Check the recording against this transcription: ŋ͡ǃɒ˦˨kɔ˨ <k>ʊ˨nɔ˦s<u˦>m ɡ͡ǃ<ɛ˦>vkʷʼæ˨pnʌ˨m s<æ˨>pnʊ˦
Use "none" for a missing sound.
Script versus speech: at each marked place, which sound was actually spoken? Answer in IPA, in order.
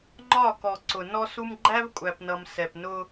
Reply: ǀ, u˦, æ˦, ɛ˨

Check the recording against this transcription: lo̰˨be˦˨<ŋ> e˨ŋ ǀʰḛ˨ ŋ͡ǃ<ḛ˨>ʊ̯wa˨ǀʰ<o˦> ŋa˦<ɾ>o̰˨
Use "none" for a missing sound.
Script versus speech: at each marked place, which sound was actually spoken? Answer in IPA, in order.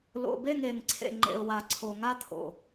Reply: ŋ, ḛ˨, o˨, t̪ʰ

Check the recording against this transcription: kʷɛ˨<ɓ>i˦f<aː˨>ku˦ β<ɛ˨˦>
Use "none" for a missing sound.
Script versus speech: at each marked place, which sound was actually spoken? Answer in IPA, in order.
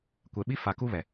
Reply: ɓ, a˨, ɛ˨

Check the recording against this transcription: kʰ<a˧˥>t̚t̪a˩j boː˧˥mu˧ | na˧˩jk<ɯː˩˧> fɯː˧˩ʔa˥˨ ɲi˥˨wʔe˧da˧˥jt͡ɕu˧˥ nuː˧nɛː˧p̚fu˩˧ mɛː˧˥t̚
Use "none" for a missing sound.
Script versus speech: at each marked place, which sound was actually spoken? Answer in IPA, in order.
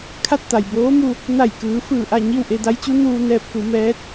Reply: a˥˨, ɯː˩˧

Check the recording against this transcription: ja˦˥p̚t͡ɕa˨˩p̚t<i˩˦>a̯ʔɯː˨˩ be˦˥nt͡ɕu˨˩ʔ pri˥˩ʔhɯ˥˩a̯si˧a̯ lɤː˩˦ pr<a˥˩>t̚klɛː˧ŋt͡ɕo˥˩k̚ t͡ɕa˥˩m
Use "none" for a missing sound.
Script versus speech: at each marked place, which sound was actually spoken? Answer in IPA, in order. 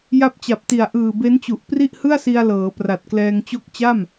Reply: i˨˩, a˨˩

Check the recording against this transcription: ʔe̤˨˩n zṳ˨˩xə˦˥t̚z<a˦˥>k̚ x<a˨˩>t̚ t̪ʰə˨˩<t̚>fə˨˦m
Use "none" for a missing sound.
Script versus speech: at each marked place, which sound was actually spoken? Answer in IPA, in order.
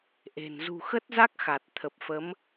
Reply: a˦˥, a˨˩, p̚

